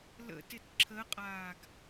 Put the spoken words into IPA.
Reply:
l ə̰ t ɪ t ǁʰ ə qʼ aː ɡ

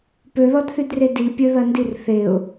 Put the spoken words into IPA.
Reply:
p ø ð ɔ d θ y d r e d i pʲ ø ð ɐ n d i r θ e ʊ̯

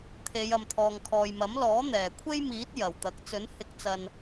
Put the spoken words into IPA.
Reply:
t̪ʰ e˨˧ j ɐ˨ m t̪ʰ ɔː˨ ŋ kʰ ɔː˨ j m ɐ˨˥ m l ɔː˨˥ n̪ ɛː˨˩ kʷʰ e˥ j m iː˨˥ t̚ j ɐ˨˩ w t̪ ɐ˨˥ k̚ t͡s ɵ˨˥ n h ɪ˨˥ k̚ t͡s ɐ˨ n

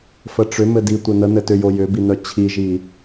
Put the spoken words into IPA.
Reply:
f ə ʈ͡ʂ ʏ m ɘ d i tʷ ɘ n ə n ɘ t ʏ j o j ʏ b i n œ t͡ɕʰ i ʒ i

